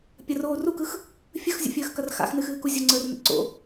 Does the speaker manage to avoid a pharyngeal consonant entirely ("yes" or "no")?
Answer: yes